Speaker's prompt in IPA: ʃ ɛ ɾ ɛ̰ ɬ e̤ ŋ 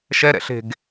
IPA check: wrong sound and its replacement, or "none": ŋ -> ɡ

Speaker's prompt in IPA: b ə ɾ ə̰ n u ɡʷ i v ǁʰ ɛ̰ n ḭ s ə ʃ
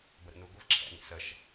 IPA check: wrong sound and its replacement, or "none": none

